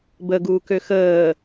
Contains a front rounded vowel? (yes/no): yes